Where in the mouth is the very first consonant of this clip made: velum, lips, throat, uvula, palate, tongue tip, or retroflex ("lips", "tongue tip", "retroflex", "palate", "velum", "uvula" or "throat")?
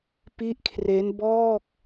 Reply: lips